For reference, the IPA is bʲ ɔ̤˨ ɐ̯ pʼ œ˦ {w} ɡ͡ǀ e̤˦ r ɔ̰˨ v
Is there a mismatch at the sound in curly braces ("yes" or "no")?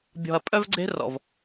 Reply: yes